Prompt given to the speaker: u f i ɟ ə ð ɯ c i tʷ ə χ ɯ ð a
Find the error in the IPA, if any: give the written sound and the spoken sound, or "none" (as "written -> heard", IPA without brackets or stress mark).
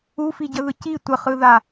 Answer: none